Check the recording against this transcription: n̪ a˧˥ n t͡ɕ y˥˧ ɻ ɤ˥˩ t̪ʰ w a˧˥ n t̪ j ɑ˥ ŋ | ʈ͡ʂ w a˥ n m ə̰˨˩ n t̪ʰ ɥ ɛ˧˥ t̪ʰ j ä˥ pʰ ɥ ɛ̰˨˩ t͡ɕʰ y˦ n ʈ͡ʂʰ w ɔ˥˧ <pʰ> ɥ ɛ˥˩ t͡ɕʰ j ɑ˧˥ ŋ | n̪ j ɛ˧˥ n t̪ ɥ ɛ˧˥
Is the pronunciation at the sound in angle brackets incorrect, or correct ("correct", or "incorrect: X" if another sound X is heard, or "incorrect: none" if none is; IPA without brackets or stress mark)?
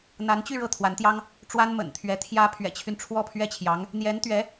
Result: correct